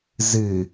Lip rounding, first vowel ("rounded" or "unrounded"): unrounded